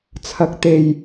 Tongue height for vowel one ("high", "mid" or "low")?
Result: low